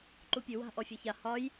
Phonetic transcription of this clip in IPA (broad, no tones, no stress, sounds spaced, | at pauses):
ǃ u pʲ ʉ w a̤ ʔ ɔ fʲ a ç a h ɒ j